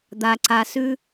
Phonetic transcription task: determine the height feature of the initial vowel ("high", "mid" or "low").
low